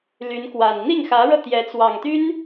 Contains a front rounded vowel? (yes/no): yes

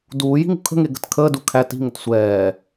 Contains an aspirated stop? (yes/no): yes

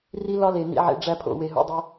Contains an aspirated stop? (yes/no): yes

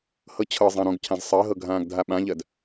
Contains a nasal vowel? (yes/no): yes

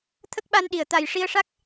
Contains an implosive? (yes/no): yes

